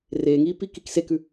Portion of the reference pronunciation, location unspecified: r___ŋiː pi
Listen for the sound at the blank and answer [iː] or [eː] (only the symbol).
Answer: eː